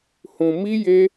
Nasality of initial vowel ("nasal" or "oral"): nasal